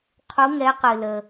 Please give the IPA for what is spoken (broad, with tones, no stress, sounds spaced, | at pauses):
qʰ u˨˦ ŋ ɛ˨˦ q ɨ˩ l ə˩